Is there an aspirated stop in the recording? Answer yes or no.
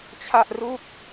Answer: yes